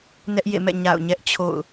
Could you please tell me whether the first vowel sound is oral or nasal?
oral